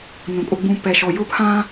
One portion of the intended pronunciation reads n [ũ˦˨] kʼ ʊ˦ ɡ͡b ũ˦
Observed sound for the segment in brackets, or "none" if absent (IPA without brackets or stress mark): ũ˨